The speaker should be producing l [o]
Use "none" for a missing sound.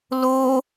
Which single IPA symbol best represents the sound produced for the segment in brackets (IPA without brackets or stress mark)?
o